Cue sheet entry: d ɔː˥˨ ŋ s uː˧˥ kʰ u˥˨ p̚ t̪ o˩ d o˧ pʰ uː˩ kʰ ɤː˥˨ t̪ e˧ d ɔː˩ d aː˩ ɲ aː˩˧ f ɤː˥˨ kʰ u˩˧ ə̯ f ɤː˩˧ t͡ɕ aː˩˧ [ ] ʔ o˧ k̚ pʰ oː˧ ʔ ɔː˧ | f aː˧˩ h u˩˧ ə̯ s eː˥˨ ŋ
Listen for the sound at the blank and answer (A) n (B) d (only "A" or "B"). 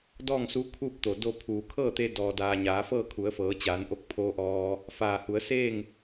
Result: A